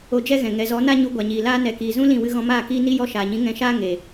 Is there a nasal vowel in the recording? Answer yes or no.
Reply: yes